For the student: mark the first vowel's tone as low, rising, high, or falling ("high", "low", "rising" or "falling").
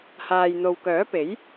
low